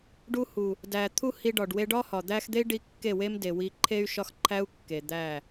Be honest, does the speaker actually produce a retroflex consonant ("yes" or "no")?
yes